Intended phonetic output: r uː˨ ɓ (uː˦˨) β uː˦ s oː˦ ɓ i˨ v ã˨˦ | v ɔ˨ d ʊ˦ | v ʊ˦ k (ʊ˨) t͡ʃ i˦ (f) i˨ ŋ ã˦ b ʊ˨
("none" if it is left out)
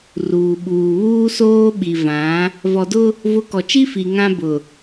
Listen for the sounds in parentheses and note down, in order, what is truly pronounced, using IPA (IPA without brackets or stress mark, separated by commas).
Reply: uː˨, ɔ˨, f